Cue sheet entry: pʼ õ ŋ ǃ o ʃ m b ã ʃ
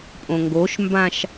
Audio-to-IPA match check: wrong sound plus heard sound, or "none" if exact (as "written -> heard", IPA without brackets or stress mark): ǃ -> ɡ